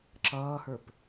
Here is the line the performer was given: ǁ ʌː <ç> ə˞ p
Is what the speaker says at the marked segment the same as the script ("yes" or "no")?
no